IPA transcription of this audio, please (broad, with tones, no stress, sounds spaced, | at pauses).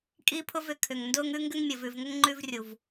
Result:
kʼ i˦ pʰ ʊ˦ v ʏ˨ kʰ ʏ˨ ŋ n d ʊː˦ ŋ ʉ˦ ŋ ɡ ʏ˦ ŋ mʲ ə˨ v ʉ˨ v ŋ ə˦ ŋ ŋ͡ǃ ʉ˦ v rʲ u˨ v